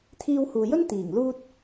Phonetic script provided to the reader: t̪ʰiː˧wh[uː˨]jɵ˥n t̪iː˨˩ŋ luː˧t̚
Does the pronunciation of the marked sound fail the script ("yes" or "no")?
no